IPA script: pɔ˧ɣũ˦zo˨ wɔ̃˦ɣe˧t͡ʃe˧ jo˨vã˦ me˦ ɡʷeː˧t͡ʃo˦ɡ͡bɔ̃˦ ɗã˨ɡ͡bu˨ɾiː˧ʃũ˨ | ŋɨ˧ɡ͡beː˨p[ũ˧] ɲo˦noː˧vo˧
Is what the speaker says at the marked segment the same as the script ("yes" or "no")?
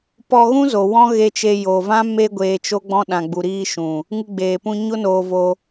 yes